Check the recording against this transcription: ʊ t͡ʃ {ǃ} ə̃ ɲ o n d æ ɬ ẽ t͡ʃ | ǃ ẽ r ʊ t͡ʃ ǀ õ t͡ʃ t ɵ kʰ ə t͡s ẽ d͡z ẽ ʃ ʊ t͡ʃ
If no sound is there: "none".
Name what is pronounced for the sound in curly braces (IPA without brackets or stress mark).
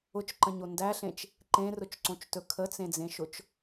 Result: ǃ